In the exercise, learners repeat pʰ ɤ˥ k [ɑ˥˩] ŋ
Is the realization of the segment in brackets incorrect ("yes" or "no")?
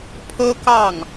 no